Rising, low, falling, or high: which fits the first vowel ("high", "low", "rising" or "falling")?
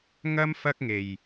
high